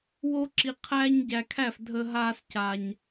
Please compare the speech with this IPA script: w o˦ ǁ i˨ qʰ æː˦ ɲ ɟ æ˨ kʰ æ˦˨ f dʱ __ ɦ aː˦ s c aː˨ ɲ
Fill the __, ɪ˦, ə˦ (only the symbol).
ə˦